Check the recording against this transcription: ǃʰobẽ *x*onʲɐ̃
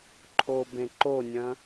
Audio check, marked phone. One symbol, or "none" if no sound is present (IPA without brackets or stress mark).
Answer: ǃ